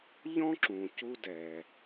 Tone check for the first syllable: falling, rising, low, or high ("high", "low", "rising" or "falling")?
high